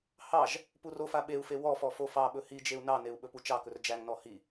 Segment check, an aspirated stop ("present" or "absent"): absent